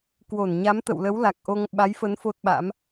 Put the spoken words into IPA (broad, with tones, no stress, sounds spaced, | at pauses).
k w o˧˩ n ɲ a˨˦ m t̪ ə̰˧˨ w l ə˨˦ w l a˨˩ k̚ ʔ o˧ ŋ ɓ a˨˦ j f ə˨˦ n f o˦˥ t̚ ɓ a̰˧˥ m